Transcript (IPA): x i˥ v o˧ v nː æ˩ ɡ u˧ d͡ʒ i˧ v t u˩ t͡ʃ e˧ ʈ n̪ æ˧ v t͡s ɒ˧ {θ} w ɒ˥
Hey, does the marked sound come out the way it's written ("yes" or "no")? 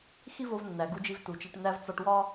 no